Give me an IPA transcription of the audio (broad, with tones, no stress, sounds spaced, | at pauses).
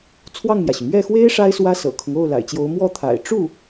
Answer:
t͡sʰ w ɑ˥˩ ŋ m j ä˩ ɕ y˩ m ɥ ɛ˥˩ x w e˥ ɪ̯ ʂ a˥ ɪ̯ s w ä˥ s ɤ̰˨˩ kʰ ʊ˦ ŋ o˥˩ ʊ̯ l a̰˨˩ ɪ̯ t͡ɕ j o˧˥ ʊ̯ m w ɔ˥˩ t̪ʰ a̰˨˩ ɪ̯ ʈ͡ʂ u˥˩